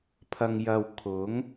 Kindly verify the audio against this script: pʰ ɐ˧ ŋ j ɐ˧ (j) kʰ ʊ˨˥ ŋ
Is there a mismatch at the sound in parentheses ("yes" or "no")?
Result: yes